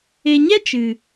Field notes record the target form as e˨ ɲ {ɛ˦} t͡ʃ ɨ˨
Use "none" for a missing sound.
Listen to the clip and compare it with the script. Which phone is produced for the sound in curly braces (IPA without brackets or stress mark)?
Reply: ɛ˦